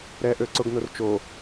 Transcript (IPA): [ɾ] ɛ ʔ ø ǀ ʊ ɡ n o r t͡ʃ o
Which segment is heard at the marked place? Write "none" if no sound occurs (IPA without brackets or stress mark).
ɾ